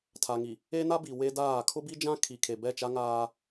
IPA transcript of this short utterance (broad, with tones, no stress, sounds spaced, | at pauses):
tʰ a˨ ŋ i˨ | e˦ n a˦ b i˨ w e˦ d aː˦˨ kʰ ʊ˦ b i˦ d͡ʒ ã˦ kʰ i˨ kʰ e˨ b ɛ˦˨ t͡ʃ a˦ ŋ aː˦